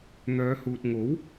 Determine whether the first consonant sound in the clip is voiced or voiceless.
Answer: voiced